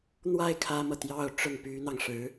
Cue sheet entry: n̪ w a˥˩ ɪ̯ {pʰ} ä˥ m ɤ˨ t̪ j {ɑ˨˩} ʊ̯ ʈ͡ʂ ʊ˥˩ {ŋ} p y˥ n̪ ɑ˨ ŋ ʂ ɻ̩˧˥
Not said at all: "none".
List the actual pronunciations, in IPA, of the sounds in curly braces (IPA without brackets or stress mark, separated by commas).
kʰ, ɑ˥˧, ŋ